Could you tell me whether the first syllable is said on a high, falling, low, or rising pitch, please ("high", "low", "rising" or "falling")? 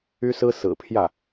high